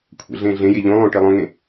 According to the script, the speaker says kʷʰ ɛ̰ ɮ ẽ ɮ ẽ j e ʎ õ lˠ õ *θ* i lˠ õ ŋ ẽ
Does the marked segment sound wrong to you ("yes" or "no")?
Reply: yes